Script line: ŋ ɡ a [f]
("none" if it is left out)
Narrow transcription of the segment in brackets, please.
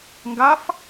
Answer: f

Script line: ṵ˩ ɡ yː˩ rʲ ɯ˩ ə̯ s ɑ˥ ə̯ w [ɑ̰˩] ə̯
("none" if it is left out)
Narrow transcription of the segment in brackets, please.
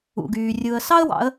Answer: ɑ̰˩˧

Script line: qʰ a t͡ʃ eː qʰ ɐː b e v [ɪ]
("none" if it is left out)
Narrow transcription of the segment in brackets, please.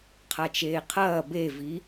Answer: i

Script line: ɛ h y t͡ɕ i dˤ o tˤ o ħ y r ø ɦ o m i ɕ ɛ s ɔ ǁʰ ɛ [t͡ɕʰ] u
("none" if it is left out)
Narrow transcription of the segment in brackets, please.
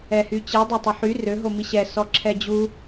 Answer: d͡ʑ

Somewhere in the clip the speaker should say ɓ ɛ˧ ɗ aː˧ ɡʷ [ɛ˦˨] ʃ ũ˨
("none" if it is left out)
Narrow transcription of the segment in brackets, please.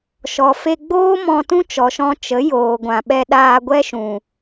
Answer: ɛ˦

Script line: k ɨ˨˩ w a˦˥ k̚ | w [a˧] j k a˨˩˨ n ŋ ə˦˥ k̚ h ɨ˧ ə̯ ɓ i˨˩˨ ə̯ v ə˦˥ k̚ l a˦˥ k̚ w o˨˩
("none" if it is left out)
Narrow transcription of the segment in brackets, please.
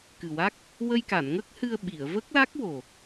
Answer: ə˧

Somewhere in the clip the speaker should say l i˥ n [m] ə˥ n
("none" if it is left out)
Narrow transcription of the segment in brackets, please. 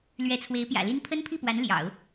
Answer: pʰ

